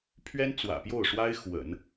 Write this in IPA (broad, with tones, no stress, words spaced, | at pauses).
pʰɥɛ˥nt͡swä̰˨˩pjo˥˩ʊ̯ʂwa˥ɪ̯ xwə̰˨˩˦n